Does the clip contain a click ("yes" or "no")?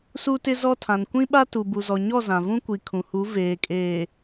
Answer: no